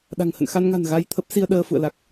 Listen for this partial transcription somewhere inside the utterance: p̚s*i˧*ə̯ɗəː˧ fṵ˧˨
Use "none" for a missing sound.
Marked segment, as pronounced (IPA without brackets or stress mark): i˧